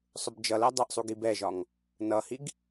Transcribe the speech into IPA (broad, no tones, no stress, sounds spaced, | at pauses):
sˤ ʊ b d͡ʒ ʌ l ɜ dˤ ʌ ʔ sˤ u ɡ i b ɛ ʒ ɒ ŋ | n ʌ h i ɡ